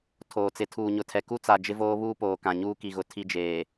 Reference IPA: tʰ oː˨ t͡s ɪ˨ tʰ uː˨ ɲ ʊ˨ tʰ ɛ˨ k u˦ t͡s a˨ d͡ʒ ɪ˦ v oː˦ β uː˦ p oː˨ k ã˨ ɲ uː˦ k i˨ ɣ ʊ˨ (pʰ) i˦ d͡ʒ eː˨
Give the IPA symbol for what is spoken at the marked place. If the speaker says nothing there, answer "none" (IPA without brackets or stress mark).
tʰ